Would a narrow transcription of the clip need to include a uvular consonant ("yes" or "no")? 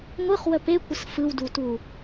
yes